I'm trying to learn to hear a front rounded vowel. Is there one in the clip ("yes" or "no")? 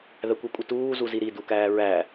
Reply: no